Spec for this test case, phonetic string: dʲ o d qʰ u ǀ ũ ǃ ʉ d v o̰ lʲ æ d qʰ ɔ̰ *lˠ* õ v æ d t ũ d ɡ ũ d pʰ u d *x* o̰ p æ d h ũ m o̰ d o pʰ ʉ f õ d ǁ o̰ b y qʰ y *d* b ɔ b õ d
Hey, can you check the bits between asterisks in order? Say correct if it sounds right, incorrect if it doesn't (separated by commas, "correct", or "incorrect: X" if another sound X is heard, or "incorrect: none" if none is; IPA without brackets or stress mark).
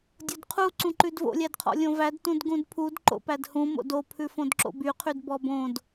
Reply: incorrect: lʲ, incorrect: ǃ, correct